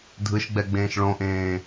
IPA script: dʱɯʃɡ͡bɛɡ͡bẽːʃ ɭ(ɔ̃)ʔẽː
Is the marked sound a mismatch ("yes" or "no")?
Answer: yes